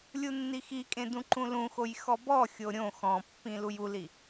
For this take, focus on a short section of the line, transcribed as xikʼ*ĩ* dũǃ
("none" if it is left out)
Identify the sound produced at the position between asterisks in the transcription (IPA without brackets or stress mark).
ẽ